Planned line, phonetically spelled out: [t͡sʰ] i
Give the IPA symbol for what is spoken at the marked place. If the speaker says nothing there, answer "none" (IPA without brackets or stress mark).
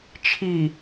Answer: t͡ʃʰ